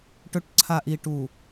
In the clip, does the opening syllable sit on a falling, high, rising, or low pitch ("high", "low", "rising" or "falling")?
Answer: low